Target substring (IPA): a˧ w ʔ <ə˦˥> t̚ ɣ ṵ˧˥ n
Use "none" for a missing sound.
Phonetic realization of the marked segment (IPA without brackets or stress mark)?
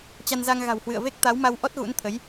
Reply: ɔ˦˥